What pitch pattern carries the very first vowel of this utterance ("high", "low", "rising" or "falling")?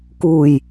low